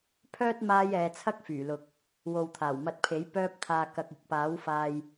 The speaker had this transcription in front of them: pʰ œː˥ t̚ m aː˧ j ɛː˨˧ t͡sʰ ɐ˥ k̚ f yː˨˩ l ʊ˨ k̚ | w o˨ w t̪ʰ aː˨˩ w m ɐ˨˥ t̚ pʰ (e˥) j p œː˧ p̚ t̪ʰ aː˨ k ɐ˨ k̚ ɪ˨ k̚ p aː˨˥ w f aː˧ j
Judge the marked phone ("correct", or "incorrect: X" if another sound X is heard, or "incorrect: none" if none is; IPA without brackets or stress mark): incorrect: e˨˥